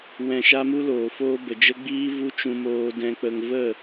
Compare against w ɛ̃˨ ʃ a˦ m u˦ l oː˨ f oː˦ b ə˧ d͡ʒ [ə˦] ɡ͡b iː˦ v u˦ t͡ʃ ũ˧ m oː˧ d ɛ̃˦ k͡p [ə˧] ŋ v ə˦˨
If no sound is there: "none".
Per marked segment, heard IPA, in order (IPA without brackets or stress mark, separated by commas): ə˦, ə˧